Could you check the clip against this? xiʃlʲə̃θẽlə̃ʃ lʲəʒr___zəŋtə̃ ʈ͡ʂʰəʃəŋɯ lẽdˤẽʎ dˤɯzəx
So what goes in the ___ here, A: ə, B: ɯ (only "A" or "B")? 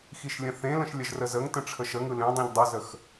A